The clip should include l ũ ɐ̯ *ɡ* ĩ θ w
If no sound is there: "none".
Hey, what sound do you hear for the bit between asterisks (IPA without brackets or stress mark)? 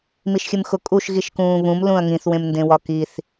ŋ